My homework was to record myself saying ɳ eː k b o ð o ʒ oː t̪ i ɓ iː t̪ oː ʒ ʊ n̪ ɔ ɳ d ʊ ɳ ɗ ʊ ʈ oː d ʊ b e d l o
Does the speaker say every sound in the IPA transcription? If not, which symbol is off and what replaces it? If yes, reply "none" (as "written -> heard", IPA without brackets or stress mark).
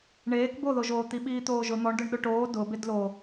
none